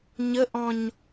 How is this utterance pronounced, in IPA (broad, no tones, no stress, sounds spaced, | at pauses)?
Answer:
ɲ ə ʔ ɔ̃ ɲ